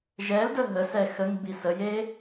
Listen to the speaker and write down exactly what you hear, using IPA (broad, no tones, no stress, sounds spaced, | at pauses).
ʒ ɛ l d ə ɦ ə s ɛ x ə ŋ b i s ə j e